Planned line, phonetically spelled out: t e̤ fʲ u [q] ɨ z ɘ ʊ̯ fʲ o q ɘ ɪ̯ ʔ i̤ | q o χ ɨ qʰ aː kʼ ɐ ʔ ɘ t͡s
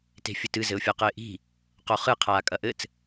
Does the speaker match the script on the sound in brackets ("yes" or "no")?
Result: no